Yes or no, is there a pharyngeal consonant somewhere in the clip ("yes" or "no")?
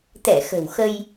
no